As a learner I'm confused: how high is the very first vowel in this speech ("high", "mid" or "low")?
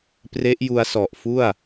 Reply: mid